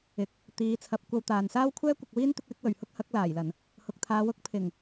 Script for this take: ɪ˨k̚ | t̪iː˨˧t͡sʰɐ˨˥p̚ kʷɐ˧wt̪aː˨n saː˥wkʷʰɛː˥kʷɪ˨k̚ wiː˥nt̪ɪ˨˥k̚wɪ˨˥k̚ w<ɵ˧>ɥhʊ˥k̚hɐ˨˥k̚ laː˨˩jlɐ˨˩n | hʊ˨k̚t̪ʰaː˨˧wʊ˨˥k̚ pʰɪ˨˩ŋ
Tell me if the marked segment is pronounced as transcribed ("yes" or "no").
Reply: no